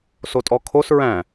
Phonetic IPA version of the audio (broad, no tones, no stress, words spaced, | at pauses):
sotʼɔkʰos ɹæ̃